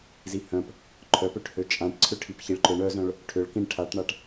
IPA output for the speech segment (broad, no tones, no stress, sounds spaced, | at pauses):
z i h œ̃ p | ǃʰ œ p ø ʈ h ø t͡ʃʼ ã ʈ ǀʰ ʏ ʈʰ i p ç i ɭ ǃ ø ɳ œ z œ̃ ɭ | ʈʰ ʏ ɭ k ĩ ɳ ʈʰ a ʈ ɳ a ʈ